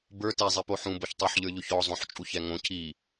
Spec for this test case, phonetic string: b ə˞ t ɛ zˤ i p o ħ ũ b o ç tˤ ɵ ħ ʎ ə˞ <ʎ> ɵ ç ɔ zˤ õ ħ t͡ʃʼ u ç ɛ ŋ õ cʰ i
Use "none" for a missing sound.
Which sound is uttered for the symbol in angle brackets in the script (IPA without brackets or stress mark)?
ʎ